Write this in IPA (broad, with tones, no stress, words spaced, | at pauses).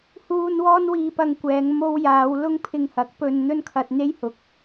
huː˧n wɔː˥nwiː˧pɐ˧ŋkʷɛː˨˧ŋ mo˧wjaː˨˧w lʊ˥ŋpʰɪ˧ŋhɐ˨˥k̚ pɵ˧n n̪ɵ˥nkʰɐ˧t̚n̪e˥jhʊ˨˥k̚